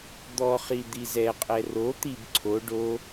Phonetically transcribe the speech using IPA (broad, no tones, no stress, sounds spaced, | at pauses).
d̪ ɔ χ i d̪ i z ɛ qʼ ɛ r o t̪ i b ǀʰ o ɖ o